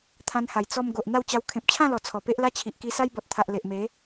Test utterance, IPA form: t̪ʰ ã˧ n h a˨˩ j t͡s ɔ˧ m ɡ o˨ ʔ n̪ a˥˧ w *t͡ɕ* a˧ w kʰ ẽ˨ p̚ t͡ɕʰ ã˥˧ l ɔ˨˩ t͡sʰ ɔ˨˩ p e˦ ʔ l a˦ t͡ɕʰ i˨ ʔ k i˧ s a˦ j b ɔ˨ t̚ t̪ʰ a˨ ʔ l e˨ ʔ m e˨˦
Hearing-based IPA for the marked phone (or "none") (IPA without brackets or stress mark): t͡ɕ